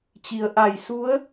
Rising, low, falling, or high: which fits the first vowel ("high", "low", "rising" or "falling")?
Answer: low